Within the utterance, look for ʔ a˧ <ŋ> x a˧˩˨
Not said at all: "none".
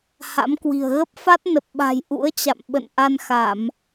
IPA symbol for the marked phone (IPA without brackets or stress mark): n